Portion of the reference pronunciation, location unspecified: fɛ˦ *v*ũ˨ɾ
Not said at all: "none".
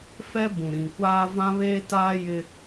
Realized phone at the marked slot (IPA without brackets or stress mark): b